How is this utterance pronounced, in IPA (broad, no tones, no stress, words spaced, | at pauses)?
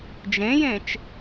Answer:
d͡ʒẽjẽt͡ʃ